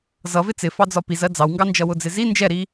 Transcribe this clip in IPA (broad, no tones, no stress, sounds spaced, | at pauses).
z ʌ v ɪ t͡s ɪ f ɑ d͡z ɒ p i z ɜ d͡z ɑ w ŋ ɡ ɑ n d͡ʒ ʌ w ʊ d͡z ɪ z i n d͡ʒ ɛ ɾ i